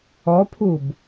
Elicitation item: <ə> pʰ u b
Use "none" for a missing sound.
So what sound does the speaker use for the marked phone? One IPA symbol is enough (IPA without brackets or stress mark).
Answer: ɔ